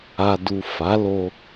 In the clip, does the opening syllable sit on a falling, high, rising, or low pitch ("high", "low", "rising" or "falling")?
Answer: low